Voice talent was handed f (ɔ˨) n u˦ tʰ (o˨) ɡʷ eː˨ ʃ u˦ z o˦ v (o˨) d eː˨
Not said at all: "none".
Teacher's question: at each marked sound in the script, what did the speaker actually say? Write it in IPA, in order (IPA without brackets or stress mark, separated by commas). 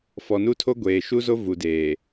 ɔ˨, o˦, u˨